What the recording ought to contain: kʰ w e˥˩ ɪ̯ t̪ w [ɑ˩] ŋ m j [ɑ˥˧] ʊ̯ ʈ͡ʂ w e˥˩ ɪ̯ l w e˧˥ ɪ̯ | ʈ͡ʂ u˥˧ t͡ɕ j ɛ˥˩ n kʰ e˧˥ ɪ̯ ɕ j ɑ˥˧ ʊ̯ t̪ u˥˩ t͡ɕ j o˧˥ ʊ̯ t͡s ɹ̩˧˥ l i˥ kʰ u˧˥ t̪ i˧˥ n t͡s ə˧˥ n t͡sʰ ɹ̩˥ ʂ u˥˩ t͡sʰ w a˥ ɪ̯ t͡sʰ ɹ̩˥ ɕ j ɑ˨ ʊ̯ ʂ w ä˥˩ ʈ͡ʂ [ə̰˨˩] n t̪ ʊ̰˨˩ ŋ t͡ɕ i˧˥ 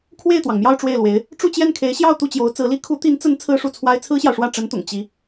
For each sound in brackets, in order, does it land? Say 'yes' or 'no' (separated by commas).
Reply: yes, yes, no